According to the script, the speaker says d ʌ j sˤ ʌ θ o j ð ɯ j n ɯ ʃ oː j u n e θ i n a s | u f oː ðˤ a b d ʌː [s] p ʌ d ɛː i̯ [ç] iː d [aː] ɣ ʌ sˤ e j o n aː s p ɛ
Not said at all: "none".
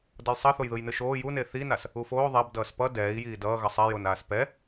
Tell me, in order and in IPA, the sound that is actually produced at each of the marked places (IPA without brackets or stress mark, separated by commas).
s, j, ʌː